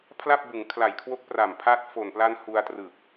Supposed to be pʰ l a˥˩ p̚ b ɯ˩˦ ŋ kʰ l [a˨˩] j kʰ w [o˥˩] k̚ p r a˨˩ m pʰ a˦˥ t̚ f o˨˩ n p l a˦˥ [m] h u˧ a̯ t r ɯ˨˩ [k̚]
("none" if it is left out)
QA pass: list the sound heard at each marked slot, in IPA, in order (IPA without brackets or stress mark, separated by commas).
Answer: a˨˩, o˦˥, n, k̚